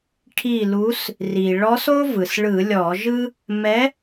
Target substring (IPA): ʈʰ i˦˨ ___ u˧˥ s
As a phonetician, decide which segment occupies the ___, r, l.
l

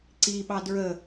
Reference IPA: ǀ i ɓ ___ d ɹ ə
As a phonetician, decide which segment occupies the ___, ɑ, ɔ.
ɑ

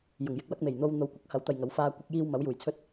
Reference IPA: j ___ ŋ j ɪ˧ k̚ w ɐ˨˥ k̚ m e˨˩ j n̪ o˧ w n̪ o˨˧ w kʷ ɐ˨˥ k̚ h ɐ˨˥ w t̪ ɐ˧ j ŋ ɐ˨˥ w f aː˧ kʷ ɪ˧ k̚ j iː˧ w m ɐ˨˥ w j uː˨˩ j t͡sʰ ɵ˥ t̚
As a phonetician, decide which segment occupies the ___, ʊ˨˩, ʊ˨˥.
ʊ˨˩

